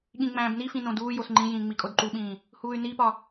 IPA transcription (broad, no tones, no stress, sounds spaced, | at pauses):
ɠ ĩ ŋ͡m æ̃ː b n i f ĩ n õ d uː j o s ŋ͡ǃ ĩ j ĩː ŋ͡m i kʼ o d ǃ u ɓ ĩː | h uː y̯ n i p ɒ